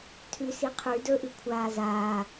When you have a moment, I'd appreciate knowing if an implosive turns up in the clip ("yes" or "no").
no